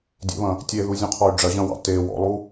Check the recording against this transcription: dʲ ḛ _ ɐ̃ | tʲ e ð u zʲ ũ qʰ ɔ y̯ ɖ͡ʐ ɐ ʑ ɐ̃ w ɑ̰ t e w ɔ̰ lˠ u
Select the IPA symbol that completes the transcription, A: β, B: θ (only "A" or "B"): A